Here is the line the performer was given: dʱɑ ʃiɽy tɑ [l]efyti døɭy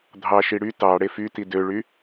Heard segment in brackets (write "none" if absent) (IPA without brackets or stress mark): ɽ